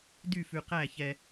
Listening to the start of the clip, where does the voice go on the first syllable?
falling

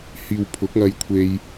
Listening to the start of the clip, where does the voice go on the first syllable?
low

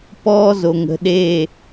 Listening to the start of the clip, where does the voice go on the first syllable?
high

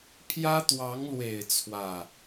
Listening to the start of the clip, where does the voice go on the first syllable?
high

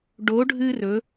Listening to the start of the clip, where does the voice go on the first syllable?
rising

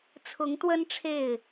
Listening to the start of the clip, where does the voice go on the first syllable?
rising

